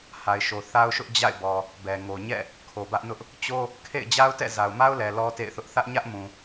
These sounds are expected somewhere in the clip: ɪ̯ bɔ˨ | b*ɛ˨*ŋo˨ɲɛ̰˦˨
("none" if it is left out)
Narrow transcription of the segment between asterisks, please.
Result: ɛ˨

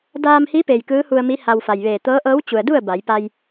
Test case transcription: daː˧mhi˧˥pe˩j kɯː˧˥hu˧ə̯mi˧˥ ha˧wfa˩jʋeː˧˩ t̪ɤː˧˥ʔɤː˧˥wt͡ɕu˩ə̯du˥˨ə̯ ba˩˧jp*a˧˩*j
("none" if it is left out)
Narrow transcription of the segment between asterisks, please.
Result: a˧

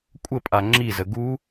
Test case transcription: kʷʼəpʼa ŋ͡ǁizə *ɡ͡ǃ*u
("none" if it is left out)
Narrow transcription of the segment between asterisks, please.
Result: ɡ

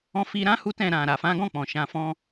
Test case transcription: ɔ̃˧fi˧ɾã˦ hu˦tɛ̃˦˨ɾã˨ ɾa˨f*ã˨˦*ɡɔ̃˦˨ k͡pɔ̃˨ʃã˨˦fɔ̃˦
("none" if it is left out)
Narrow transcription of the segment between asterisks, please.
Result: ã˨˦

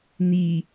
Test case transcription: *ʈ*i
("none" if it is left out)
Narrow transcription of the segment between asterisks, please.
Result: n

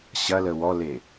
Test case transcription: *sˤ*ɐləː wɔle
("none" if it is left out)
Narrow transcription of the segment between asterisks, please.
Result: ɕ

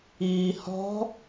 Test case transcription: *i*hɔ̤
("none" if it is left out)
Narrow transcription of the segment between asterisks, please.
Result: iː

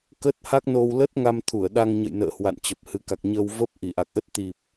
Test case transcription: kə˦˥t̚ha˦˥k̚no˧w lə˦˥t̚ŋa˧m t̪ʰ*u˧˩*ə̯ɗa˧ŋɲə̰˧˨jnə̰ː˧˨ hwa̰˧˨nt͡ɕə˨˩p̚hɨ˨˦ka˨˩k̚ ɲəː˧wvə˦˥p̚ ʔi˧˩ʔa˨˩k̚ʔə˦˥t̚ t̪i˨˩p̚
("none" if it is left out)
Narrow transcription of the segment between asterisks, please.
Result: u˧˩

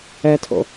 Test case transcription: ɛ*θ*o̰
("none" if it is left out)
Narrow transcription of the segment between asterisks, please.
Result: tʰ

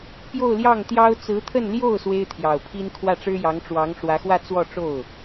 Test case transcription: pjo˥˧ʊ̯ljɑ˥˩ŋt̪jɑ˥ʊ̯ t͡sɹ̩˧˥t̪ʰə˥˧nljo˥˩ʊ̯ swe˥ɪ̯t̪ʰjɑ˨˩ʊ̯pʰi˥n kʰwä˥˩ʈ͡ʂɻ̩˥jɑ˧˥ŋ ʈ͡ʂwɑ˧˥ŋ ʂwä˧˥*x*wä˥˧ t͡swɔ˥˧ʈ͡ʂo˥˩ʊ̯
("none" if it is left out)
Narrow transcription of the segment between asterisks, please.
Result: x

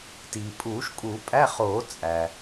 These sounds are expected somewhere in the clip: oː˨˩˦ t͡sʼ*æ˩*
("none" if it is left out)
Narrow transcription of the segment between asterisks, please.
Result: æ˩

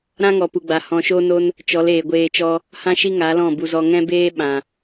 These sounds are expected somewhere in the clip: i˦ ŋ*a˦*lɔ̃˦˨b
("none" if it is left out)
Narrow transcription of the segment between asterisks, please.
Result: a˨˦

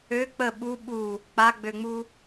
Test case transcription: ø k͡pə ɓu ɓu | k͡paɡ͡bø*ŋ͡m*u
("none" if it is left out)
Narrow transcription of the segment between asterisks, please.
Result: ŋ͡m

